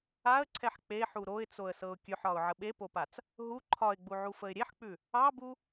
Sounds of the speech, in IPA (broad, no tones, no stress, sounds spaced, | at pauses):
a ə̯ ǀʰ ɛ ħ k͡p e ħ u ɾ o ɪ̯ t͡s o ə̯ s ɤ ʊ̯ kʲ ʉ ħ ɒ ʊ̯ ʕ ə ɓ e p o p a t͡s | ɦ u ǃʰ ɒ ɪ̯ ɡ͡b u ʕ u f ə ɪ̯ ɾʲ e ħ k͡p ʉ | ɑ b u